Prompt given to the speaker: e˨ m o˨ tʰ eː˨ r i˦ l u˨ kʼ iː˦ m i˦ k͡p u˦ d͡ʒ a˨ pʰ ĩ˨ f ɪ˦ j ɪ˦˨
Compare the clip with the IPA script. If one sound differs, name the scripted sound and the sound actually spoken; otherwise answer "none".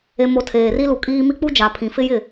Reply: none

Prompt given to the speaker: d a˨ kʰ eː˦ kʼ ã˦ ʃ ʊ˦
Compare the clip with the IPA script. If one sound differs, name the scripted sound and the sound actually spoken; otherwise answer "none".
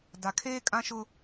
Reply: none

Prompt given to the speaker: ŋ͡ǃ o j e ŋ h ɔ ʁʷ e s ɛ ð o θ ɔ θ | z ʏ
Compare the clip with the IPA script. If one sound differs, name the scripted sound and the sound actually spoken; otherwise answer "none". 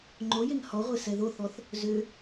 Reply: none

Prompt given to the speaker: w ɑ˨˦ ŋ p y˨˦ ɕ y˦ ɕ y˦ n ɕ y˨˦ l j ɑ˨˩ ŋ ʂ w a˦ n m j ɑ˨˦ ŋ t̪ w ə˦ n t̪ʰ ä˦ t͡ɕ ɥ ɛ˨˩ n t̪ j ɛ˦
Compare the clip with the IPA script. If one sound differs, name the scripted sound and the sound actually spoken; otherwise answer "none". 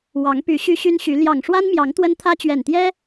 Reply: none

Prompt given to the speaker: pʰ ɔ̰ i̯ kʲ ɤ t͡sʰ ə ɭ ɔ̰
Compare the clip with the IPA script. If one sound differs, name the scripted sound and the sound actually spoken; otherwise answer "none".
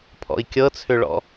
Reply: ə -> ʏ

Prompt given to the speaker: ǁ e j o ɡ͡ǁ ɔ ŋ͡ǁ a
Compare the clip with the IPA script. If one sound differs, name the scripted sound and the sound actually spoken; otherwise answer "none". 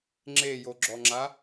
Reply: ǁ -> ŋ͡ǁ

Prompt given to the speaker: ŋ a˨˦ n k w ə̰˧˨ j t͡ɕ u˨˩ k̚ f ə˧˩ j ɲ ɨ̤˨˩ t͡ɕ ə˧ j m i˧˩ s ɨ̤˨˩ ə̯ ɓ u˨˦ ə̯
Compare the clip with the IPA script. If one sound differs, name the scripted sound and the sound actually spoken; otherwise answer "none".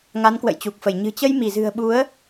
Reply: s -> z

